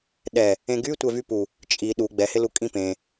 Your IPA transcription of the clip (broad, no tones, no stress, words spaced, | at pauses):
ɗɛ | ẽɡy tʷɛvypu | t͡ʃʼi ɗu ɡ͡bɛhɪlu kʼĩpẽ